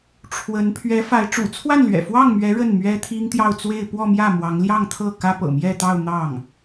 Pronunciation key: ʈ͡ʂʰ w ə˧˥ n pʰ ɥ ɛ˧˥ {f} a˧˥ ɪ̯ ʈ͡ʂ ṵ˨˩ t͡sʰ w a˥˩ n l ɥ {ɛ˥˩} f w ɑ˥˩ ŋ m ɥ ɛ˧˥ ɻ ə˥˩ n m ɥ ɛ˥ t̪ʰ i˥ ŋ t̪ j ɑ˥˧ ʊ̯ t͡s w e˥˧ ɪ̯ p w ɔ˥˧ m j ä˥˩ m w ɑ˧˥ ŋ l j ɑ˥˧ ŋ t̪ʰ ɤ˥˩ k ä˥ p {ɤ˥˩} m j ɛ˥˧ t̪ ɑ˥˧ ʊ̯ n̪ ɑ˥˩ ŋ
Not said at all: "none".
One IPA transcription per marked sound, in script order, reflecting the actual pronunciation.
f, ɛ̰˨˩, ɤ̰˨˩

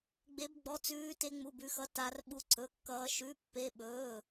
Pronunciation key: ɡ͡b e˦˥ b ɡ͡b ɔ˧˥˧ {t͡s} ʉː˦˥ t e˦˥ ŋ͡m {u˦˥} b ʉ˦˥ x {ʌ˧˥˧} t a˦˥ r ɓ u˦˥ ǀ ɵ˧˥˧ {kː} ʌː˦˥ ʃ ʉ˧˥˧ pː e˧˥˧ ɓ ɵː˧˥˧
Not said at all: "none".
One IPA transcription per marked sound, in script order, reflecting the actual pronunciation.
t͡s, u˧˥˧, ʌ˧˥˧, kː

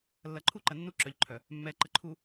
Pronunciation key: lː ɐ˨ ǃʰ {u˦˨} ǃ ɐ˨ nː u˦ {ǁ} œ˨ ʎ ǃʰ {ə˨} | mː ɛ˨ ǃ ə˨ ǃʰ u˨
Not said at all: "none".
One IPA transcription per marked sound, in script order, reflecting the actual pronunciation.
u˦˨, ǁ, œ˨

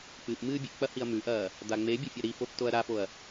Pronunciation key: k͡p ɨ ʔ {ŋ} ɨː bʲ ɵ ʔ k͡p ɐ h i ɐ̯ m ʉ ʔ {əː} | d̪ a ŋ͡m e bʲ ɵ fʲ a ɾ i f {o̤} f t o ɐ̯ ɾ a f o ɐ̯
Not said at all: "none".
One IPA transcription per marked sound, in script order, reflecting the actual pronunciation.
m, ɐː, o

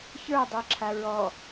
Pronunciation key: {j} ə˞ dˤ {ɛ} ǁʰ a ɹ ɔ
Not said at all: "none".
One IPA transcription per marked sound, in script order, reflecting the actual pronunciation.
ç, ɛ

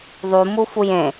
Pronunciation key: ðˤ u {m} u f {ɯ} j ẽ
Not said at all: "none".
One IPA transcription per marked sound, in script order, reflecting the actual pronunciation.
m, u

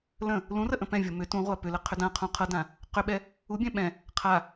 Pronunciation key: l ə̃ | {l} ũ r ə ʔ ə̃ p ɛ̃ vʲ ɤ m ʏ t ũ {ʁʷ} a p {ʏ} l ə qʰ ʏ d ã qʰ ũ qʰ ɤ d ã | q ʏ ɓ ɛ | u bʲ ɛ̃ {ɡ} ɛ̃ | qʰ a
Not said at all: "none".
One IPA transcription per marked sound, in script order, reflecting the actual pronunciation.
l, ʁʷ, ʏ, ɓ

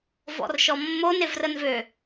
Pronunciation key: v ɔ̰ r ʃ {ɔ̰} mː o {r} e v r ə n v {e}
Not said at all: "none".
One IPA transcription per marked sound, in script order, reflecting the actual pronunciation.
ɔ, n, ø

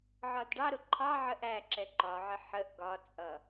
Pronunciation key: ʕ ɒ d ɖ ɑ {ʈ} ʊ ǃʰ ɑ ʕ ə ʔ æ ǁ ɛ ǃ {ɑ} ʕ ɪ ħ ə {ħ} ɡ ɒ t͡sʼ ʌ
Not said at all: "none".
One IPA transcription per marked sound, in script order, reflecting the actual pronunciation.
ɾ, ɒ, ʔ

